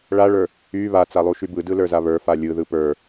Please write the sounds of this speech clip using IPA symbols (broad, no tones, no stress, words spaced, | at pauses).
ɭaɭə˞ | y βat͡salˠuʃy bɯdɯlə˞za βə˞fa lʲɯðɯ pə˞